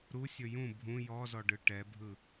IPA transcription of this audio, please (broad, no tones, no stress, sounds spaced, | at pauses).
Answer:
ɾ u sʲ ɵ j ũ bʱ ũ j ɔ z ɔ ɖ ɯ ʈ ɛ bʱ ɯ